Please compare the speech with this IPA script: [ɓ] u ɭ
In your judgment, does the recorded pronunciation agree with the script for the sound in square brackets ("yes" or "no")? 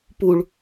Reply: no